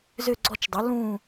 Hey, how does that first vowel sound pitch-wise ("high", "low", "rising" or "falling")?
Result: falling